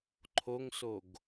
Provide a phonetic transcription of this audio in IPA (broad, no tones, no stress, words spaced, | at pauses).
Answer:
ǃʰoŋsoɡ